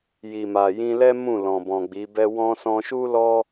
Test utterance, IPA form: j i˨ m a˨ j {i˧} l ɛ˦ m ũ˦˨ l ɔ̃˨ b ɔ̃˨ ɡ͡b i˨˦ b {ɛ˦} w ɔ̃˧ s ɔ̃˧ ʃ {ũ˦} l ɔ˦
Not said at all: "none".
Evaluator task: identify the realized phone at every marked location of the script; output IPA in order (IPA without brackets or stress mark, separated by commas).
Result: ĩ˧, ɛ˦, u˦